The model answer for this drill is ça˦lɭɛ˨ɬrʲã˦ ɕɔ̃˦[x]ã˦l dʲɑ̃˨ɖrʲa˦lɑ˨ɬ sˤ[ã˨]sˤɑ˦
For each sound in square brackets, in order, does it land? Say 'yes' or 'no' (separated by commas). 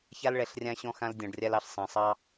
yes, no